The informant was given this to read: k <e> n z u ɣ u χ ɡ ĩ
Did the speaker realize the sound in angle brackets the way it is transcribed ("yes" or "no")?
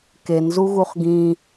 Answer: yes